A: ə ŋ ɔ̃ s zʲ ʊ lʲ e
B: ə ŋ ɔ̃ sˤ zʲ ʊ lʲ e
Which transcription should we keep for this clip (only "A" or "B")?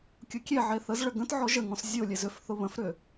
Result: A